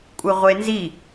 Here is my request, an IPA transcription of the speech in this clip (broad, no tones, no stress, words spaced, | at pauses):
kʷʼɯʁʷenzi